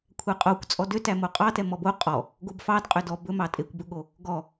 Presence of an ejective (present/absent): present